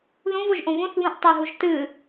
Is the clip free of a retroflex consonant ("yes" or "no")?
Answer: yes